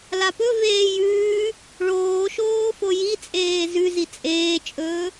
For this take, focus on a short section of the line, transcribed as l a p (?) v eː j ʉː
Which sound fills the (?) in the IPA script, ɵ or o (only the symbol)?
ɵ